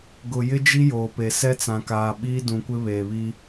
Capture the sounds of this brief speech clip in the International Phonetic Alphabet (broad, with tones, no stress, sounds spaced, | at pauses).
ɡ ʊ˨ j ɪ˦ d͡ʒ i˦ j oː˨ p e˨ s ɛ˦ t͡s ã˨ k aː˨ ɓ iː˦ d ũ˨ kʷ ɪ˦ β eː˨ β i˦